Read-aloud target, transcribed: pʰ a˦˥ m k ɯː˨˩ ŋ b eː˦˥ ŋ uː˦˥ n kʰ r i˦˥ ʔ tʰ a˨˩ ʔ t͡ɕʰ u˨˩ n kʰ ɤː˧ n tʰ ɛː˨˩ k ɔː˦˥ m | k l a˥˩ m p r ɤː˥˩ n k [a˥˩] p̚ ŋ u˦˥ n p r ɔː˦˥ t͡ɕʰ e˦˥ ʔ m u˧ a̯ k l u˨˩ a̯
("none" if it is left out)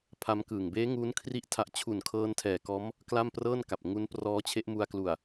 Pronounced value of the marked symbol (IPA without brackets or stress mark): a˨˩